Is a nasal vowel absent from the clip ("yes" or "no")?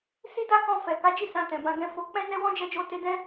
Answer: no